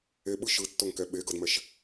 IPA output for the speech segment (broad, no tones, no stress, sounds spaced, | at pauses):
e ɓ ɯ ʃ ɯ tː o ŋ k ɛ ɓ e ɡ ɤ d m ɛ ʃ